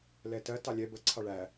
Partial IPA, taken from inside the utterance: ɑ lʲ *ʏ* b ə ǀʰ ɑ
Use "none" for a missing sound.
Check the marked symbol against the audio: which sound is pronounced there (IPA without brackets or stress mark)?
ɛ